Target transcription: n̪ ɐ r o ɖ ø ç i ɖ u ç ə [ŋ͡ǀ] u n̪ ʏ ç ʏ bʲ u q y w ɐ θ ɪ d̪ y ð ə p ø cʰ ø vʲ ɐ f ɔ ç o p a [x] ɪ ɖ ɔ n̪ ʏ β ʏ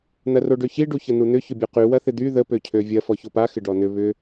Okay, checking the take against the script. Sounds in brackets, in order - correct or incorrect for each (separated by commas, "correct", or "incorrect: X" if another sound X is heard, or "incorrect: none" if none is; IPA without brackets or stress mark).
incorrect: n̪, correct